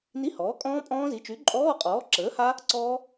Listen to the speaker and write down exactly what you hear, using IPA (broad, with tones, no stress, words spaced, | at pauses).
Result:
ni˧˥˧hɔː˩˥kʼɔ̃ː˦˥ pʼɔ̃ː˦˥zi˩˥ t͡ʃy˩˥ǃʼɔː˧˥˧qʼɔː˩˥ ǁəː˩˥ha˦˥ | ǀɔː˦˥